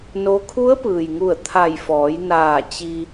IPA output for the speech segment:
no˧˥ kʰu˧˥ə̯pɯː˩jŋu˧˩ə̯ t̪ʰa˧˩jfɔː˩˧jnaː˧˩ t͡ɕi˧

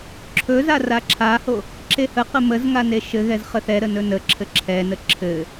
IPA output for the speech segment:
ǁʰɵza raǁʰaho | ǁehəqə məzŋa neʃɘɣɛz χəθɛɾə nɵnəǁʰɘ ǁʰɛnə ǁʰɘ

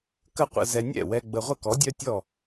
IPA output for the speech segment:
kə˥qʷə̰˧zɛ˧ nʲɛ̰˥˩wɛ˧ ɡ͡bə˧ ʁʷə˥˩kɔ˩˥ dʲœ˥tʲɔ˥˩

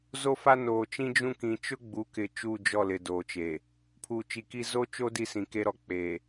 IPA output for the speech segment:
zo˦fa˦ noː˨t͡ʃĩ˦d͡ʒũ˦ kĩ˨t͡ʃʊ˦ɡ͡bu˨˦kɪ˨ t͡ʃuː˦˨d͡ʒɔ˦˨ lɪ˨doː˨t͡ʃeː˨ | pʰuː˨t͡ʃi˨ki˦ zo˦t͡ʃo˦ di˦sĩ˨ ke˦ɾɔ˨k͡peː˨

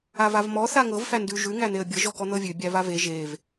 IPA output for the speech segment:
avavmɔ θaŋɤv fændʉ ʒʉ ŋæn̪eə̯bʲɤ ʒɔkɔn̪ɤvʲʉ bʲævave ʒev

